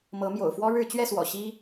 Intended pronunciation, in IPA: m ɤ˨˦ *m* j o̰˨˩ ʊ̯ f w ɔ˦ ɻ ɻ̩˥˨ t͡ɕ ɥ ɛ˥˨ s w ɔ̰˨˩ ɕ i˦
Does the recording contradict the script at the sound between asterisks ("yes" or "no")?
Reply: no